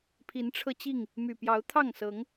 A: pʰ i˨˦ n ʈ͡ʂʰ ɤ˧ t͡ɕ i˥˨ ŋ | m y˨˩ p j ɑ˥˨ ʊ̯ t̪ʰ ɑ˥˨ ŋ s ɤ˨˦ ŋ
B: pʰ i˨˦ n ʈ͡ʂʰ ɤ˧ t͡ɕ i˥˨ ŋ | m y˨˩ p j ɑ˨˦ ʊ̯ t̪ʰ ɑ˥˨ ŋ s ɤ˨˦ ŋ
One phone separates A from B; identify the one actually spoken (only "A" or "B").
B